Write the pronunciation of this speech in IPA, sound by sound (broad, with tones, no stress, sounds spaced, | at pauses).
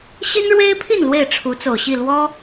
ɕ i˦ n ɻ w e˦ ɪ̯ pʰ i˥˨ n l w e˥˨ ɪ̯ ʈ͡ʂʰ u˨˦ t͡s o˨˩ ʊ̯ ɕ i˥˨ l w ɔ˦